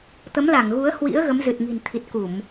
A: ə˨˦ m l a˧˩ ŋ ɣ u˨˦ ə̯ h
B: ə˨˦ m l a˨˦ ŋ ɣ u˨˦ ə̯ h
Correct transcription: A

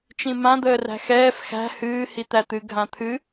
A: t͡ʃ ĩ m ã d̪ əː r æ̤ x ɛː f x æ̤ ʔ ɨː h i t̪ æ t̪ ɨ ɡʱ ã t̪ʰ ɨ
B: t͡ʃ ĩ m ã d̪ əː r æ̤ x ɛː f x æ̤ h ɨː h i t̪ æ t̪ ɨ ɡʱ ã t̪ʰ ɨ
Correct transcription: B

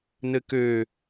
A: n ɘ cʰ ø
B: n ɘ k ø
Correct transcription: B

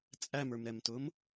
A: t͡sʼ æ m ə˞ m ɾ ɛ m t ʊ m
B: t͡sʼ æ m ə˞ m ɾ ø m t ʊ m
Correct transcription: A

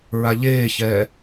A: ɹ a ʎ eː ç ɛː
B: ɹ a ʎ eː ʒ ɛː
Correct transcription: A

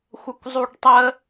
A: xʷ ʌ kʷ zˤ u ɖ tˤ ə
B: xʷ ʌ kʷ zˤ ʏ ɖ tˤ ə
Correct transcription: A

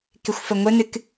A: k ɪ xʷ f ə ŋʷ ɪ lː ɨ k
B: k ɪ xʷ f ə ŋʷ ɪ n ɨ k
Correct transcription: B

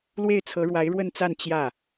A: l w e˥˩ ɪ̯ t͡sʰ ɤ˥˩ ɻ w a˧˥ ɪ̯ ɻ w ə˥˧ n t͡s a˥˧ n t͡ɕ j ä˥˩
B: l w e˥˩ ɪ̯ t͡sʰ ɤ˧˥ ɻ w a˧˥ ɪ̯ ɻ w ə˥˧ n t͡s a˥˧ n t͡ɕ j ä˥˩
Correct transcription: B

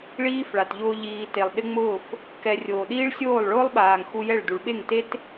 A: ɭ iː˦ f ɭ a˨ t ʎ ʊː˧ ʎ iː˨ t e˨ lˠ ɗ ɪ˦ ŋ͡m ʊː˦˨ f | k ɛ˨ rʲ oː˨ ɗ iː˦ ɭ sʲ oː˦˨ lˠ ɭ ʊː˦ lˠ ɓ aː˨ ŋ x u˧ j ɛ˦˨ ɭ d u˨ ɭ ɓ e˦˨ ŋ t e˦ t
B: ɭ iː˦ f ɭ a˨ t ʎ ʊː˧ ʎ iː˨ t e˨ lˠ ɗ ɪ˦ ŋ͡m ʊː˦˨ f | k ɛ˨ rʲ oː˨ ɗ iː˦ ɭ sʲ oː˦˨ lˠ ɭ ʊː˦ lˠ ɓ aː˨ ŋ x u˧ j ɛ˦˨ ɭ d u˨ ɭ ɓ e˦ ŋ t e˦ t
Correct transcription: A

